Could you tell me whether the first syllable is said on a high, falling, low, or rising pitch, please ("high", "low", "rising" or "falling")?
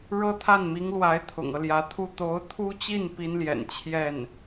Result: high